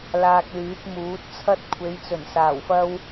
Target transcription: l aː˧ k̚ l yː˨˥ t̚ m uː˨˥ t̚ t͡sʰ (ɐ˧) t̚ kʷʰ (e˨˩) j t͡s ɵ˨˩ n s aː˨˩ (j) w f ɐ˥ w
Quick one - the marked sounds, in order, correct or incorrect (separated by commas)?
incorrect, incorrect, incorrect